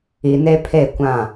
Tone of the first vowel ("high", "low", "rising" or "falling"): low